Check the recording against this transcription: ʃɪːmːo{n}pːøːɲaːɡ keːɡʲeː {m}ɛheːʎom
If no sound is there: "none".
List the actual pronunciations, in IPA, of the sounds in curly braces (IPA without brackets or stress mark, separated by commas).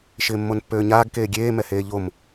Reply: n, m